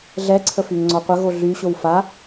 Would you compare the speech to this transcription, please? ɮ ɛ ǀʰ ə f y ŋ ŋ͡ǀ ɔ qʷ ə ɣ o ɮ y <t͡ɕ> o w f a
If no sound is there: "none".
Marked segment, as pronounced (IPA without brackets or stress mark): ɕ